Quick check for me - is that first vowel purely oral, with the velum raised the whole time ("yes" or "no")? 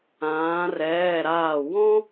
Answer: no